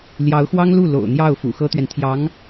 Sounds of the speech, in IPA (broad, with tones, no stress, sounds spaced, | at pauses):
l j ɑ˧˥ ʊ̯ x w ɑ˥ ŋ l u˥˩ l o̰˨˩ ʊ̯ n̪ j ɑ˥˩ ʊ̯ f ṵ˨˩ x ɤ˥ t̪ ɥ ɛ˨ n t̪ʰ j ɑ˧˥ ŋ